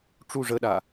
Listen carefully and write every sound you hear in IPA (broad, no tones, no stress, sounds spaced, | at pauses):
ʈ͡ʂ u ʐ ə ɗ a